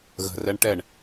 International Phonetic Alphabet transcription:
ɣ ə̤ r ɛ ɳ ʈ ɛ ɳ

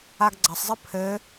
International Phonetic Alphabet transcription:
a ɡ ɡ͡ǀ ɐ sˤ zˤ ɘ pʰ ɘ

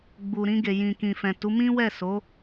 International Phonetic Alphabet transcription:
ɡ͡b u˨ ɾ ĩ˧ ɡ e˨ j ĩ˨ k ĩ˨ f ɛ̃˨ t u˨˦ m ĩ˦ w ɛ˦˨ s o˨˦

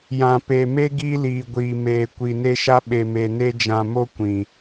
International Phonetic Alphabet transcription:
j ã˨ p e˨ m e˦ ɡ iː˦ l iː˨ ɡʷ iː˨ m eː˨ kʷ i˨ n e˦ ʃ a˦ ɓ e˨ m e˨ n e˦ d͡ʒ ã˨ m o˦ kʷ ĩ˨

